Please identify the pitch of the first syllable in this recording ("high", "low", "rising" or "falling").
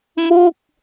falling